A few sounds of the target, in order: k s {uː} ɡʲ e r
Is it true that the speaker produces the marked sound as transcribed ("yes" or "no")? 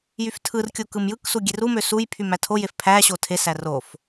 no